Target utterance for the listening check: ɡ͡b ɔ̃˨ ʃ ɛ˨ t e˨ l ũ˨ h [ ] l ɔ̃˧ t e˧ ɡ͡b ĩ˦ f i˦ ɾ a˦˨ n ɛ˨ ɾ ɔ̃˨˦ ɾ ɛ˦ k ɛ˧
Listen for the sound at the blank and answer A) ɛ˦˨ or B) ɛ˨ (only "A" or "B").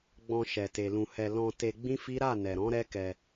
B